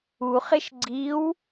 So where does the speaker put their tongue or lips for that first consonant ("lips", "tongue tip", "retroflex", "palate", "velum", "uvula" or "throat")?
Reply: uvula